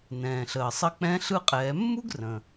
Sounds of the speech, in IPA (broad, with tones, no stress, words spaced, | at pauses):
nɛ̃ː˩ɬəː˩sˤə˧k͡pɛ̃˧˥ ɬɯ˧qʼɛː˩˧mːu˥ɡ rə̃˩